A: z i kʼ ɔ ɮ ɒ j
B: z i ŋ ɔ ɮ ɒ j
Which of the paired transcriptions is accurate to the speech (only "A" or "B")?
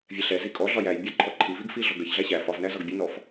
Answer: A